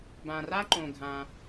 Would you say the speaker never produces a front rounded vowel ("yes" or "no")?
yes